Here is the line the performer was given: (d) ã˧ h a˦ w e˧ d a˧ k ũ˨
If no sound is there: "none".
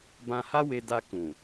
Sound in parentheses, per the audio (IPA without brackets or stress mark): b